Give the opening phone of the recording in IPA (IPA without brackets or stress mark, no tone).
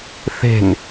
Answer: θ